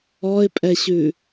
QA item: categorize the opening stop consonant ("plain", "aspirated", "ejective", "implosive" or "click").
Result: ejective